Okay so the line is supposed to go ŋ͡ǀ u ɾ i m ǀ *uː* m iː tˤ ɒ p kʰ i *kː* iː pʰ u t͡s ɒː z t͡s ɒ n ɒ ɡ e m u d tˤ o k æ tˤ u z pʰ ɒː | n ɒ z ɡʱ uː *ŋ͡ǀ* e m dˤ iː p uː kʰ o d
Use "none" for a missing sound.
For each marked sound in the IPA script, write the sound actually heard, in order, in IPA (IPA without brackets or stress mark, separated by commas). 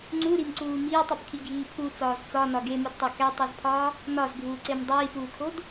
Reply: uː, ɡʱ, ǀ